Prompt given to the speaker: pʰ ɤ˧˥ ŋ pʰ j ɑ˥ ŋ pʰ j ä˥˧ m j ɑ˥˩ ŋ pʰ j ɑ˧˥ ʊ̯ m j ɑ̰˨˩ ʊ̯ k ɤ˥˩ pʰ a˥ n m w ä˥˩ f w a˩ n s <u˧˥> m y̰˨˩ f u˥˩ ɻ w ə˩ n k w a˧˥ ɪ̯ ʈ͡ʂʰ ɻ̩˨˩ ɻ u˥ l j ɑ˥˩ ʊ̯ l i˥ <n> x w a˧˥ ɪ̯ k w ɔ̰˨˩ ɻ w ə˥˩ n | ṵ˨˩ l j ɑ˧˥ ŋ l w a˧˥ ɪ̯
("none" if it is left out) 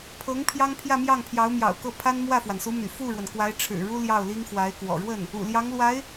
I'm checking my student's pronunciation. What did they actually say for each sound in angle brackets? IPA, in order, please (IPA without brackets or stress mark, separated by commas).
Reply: u˧˥, ŋ